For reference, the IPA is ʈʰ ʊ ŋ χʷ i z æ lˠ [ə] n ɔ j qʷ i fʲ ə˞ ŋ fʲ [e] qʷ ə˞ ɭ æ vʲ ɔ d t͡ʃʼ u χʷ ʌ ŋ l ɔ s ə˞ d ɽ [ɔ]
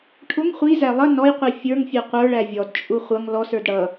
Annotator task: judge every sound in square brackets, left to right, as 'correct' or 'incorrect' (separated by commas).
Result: correct, incorrect, incorrect